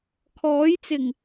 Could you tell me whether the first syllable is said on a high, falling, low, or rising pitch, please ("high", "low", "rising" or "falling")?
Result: rising